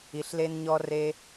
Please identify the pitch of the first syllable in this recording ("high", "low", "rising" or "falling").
low